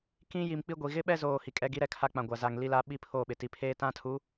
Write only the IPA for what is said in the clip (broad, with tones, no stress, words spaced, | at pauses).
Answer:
kĩ˦ji˨m k͡pi˦ɡʷi˨ ɣɪ˦ɓɛ˦zoː˨ hi˨kʼɛ˦ɡi˦ɾɛ˦ kʰa˦k͡pã˨ɡʷa˨ za˨ŋ li˦la˦ ɓi˦pʰoː˦˨ɓɪ˨ti˨˦ pʰeː˦tã˦tʰu˨˦